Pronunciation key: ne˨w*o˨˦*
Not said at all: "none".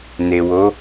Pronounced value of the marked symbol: o˨˦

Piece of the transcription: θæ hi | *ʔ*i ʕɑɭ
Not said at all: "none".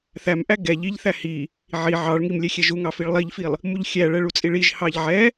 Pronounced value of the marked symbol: ʕ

